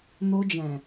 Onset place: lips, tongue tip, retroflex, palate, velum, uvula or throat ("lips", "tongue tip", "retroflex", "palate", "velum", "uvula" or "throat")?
tongue tip